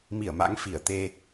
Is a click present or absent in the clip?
absent